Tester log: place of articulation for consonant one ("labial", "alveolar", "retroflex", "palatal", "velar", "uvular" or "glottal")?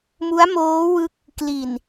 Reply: labial